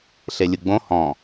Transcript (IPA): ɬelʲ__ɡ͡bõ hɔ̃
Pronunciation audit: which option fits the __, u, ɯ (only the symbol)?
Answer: ɯ